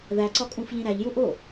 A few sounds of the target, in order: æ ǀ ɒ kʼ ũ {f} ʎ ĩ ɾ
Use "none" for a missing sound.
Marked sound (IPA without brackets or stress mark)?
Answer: f